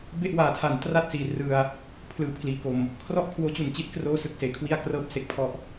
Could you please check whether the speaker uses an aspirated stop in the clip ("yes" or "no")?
yes